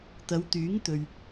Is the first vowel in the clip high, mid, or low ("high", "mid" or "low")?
low